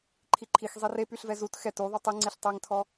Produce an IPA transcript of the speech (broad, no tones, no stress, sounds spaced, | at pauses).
ǃʰ i ǃʰ i x zˤ i r e p y ɬ v ɛ z u t x ɛ t u ðˤ u tˤ i ŋ͡ǀ i ɬ tˤ ɛ ŋ tʰ ɔ